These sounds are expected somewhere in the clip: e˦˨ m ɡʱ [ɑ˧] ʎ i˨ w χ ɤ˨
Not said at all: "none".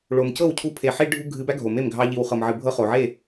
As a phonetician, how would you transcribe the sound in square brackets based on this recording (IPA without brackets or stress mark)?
ɑ˧